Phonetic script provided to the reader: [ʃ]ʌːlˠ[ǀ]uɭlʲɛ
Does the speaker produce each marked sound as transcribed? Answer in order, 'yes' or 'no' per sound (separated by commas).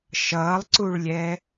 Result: yes, yes